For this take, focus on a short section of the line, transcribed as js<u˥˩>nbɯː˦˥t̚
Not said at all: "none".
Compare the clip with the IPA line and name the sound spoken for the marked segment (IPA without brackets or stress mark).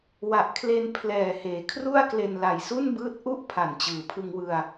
u˥˩